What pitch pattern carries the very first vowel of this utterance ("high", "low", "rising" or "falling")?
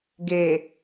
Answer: low